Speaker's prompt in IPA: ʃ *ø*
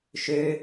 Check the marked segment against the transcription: correct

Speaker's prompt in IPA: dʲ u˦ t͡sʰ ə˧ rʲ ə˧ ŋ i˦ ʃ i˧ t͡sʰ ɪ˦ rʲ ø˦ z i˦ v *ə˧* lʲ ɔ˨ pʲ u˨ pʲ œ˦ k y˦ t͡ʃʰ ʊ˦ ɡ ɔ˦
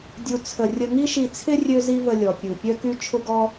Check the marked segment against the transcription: correct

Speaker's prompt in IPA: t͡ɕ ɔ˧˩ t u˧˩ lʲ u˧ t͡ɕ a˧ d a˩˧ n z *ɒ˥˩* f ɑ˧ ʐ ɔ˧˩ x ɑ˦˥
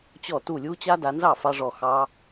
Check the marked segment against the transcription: incorrect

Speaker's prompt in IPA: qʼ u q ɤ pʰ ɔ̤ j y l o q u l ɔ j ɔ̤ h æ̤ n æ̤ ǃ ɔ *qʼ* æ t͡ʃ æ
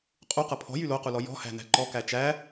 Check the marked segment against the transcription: incorrect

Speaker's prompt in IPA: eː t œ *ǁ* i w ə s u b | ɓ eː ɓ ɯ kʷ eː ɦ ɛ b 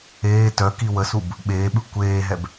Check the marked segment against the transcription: incorrect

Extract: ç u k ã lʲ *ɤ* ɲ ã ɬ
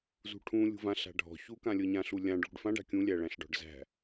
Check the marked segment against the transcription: correct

